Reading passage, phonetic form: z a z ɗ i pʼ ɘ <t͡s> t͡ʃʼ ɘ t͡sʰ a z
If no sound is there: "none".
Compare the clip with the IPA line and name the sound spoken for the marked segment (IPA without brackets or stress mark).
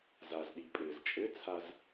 z